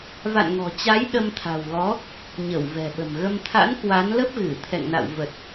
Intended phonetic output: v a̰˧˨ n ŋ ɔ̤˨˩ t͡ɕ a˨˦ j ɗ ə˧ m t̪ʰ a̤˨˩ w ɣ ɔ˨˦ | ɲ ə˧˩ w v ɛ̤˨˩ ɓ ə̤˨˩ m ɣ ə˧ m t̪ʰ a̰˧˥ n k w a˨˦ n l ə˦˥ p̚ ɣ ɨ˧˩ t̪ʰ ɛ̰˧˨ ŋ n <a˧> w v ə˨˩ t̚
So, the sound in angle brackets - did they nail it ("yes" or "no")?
no